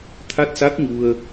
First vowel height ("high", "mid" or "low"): low